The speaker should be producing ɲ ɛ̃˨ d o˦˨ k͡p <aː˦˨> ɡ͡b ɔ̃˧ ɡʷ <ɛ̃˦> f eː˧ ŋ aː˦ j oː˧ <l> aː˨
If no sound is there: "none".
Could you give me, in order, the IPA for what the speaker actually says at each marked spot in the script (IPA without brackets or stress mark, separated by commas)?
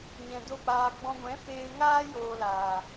aː˧, ɛ̃˨˦, l